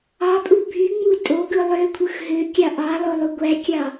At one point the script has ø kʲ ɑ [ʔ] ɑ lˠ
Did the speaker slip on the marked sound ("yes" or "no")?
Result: no